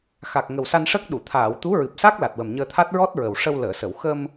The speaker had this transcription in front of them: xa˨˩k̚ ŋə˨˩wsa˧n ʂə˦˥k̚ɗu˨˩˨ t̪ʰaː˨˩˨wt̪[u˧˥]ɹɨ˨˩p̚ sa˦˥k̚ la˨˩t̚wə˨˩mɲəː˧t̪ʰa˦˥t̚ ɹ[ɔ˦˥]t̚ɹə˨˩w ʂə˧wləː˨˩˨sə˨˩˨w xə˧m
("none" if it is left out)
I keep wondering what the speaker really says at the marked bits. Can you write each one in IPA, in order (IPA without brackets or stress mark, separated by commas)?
u˧˥, ɔ˦˥